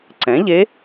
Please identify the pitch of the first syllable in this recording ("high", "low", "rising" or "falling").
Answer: rising